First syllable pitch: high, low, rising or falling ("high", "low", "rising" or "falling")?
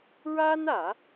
high